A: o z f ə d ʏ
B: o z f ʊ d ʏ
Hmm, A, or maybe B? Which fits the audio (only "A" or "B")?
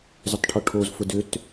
B